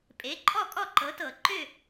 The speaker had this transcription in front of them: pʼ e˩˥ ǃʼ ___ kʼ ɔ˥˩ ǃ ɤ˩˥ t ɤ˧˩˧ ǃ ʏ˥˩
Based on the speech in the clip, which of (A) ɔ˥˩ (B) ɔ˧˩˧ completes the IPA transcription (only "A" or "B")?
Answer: A